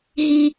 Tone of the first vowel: high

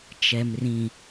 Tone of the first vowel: low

